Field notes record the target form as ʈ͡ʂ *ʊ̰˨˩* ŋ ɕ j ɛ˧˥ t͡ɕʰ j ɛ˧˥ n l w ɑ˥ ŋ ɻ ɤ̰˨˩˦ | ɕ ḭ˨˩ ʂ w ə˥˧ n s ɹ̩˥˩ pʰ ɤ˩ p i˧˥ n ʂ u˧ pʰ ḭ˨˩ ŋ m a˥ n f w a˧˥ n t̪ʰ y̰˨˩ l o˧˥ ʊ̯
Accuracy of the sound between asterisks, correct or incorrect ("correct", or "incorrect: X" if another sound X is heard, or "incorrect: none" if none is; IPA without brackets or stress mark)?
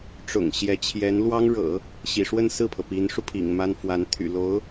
correct